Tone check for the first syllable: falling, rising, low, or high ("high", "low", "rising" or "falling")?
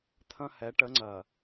high